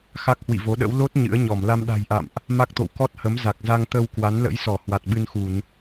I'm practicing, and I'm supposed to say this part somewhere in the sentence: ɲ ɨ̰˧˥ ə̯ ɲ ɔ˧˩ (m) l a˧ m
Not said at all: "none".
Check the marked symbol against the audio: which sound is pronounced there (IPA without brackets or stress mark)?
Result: m